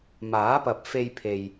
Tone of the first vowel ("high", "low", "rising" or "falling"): rising